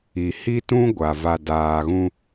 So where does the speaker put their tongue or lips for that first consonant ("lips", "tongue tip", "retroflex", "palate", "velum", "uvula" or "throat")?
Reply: throat